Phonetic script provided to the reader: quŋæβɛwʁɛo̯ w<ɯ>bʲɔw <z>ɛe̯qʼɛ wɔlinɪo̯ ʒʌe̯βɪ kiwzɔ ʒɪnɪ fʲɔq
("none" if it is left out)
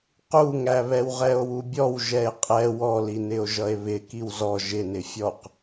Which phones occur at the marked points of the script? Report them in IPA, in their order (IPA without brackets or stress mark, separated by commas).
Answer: u, ʒ